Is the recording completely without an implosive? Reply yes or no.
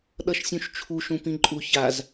no